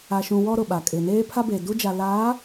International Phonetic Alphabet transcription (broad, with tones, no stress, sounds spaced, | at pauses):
a˨ ʃ ũ˨ w ɔ˦ ɾ ʊ˨ ɓ a˨ kʼ ɪ˨ n eː˦ pʰ a˦ b e˨ d u˦ d͡ʒ a˨ l aː˨˦